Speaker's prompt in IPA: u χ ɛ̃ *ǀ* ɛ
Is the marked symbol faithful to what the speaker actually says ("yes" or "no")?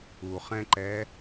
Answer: no